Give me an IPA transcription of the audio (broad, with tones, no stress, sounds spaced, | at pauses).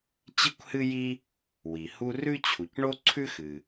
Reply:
t͡ɕ ɨ˥ kʷ h ɨ˥ j i˥ | w i˩ h u˥ r ʉ˥ t͡ɕʰ u˩ c ɳ o˥ ǀʰ ʉ˥ x ɨ˩